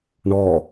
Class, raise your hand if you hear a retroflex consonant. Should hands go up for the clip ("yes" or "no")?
yes